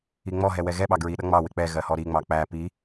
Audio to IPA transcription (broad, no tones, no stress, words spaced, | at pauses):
iŋ͡mɔɦɛ wɛɣɛɓɑ ɡɹiɗʌ ŋ͡mɑwɪ k͡pɛ ɣɜhɔɾiŋ͡mɑ k͡pæ pi